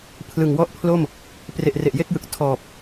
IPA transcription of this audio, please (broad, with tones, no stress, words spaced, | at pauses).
pʰlɯ˨˩ŋwɔ˥˩ʔpʰlo˥˩m | pre˨˩ʔre˨˩ʔje˥˩k̚jɯ˨˩k̚ tʰɔː˨˩p̚